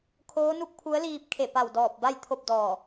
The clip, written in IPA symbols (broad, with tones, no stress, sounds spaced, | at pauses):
kʰ oː˧˥ n u˥˨ k̚ pʰ u˧˥ ə̯ l iː˧ p̚ kʰ e˧˩ p a˧˩ w d ɔː˧˩ p̚ b a˥˨ j t̪ʰ o˥˨ p̚ d ɔː˧˩